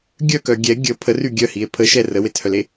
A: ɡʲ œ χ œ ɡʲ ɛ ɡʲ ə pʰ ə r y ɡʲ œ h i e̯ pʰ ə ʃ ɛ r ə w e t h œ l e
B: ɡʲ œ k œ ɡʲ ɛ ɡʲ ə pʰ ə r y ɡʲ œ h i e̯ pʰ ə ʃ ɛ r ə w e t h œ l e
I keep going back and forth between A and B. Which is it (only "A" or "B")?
B